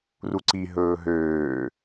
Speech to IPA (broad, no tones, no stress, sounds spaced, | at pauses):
r u ǀ i ɦ ɵː ɦ øː